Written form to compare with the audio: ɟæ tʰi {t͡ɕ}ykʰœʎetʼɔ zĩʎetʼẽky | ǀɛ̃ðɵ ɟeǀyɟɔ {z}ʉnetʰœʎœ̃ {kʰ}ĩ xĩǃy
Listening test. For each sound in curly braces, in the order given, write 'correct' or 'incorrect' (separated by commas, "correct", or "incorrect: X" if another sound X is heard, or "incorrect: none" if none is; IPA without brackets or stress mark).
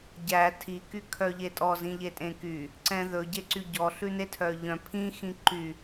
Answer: incorrect: k, incorrect: ɬ, incorrect: pʰ